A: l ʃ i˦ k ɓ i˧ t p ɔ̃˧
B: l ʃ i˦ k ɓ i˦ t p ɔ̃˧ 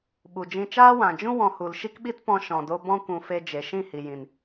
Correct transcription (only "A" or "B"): B